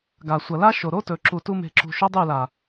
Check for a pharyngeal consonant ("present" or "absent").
absent